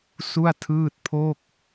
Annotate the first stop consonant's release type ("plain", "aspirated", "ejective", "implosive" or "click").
aspirated